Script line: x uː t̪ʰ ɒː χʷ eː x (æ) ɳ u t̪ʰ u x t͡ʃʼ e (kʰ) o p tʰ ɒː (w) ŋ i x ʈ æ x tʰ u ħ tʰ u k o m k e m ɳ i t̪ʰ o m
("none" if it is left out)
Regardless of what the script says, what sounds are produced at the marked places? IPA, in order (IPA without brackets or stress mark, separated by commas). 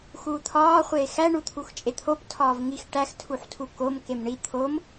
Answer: æ, t̪ʰ, v